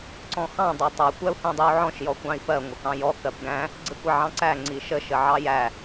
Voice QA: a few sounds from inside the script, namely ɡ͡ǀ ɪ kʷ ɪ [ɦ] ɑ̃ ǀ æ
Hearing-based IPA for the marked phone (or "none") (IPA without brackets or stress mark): ʕ